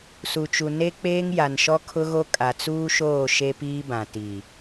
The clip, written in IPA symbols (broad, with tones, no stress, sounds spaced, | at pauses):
s u˨ t͡ʃ u˨ n e˦ k͡p eː˦ ŋ j a˨ n ʃ ɔ˦ kʰ ʊ˦ ɣ o˦ kʼ a˨ t͡s uː˦ ʃ oː˦˨ ʃ e˦ p iː˦ b ã˨ t i˨